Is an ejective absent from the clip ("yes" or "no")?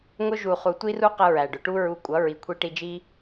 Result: no